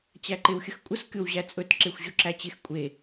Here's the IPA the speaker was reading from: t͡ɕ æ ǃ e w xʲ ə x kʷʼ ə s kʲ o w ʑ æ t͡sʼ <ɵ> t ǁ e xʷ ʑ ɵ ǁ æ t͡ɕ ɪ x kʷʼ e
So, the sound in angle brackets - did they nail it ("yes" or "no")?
yes